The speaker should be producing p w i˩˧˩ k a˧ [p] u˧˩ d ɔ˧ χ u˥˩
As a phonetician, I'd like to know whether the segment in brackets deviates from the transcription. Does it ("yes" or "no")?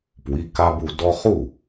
yes